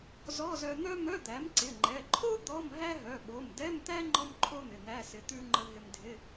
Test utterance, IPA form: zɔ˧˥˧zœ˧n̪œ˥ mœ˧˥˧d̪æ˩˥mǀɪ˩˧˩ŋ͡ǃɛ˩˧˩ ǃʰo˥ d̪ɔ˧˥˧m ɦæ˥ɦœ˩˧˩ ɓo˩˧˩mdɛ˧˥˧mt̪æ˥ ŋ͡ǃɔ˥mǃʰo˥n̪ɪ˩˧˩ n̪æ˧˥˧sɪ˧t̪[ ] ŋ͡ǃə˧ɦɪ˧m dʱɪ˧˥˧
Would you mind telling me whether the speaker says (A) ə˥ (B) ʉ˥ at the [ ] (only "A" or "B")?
B